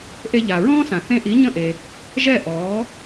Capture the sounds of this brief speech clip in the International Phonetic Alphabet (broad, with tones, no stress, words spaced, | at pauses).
ʔe˧ʎa˩ɹɔ̃ː˥sã˩ θẽ˧ʔi˩˥ ɲə̃˥˩ʔe˩ | ʒɛ˥˩ʔɔː˩˥